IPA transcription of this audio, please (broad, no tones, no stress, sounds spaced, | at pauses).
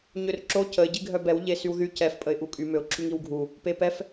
ɲ ø r ǁ o c ə ɪ̯ ɟ i ɡʱ œ b ɛ w ʎ e s y w ð y c ɛ f pʼ ə ɪ̯ ʔ u kʼ y m ø ʊ̯ ǁ y ŋ i w ɡʱ u | p e p ɛ f